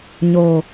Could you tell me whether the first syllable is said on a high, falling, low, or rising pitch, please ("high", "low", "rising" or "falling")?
low